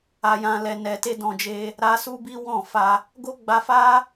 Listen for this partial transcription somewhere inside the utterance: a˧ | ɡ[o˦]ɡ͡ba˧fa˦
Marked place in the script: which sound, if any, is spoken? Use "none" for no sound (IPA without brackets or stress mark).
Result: o˦